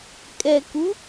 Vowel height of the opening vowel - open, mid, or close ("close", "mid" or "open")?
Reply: mid